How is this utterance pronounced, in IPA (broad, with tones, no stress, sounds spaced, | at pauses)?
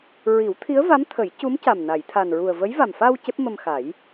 ɹ i˨˩˦ w t̪ʰ i˧˥ ə̯ v a˧˥ m t̪ʰ ə˨˩˦ j c u˧˥ m c a˨˩ m n a˨˩˨ j t̪ʰ a˨˩ n ɹ u˨˩ ə̯ v ə˧˥ j v a˨˩ m f a˧ w c e˦˥ p̚ m ə˧ m x a˨˩˦ j